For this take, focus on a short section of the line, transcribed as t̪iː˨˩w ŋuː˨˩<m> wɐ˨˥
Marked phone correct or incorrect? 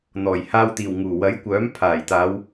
incorrect